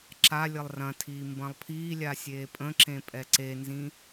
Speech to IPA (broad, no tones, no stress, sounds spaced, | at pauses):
ǁ a lʲ ə lˠ r ɐ̃ tʰ iː m b ɐ̃ lˠ pʰ iː lʲ a sʲ eː pʼ ə̃ ǁ ẽ pʼ ɛ ǀ e n z ĩ